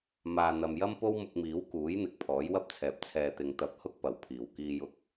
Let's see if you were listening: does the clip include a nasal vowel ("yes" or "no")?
no